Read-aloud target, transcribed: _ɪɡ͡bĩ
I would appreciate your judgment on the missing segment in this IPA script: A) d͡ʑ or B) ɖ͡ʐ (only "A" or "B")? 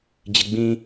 A